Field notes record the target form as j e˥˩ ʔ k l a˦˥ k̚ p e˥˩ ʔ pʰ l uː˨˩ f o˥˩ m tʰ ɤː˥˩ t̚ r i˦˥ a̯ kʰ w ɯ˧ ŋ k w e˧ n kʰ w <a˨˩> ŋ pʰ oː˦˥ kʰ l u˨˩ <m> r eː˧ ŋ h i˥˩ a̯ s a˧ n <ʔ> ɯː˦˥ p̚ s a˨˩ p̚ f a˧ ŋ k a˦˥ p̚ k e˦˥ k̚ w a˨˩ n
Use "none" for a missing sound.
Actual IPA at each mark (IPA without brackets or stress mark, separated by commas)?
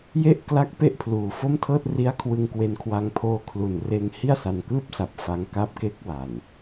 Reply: a˧, n, k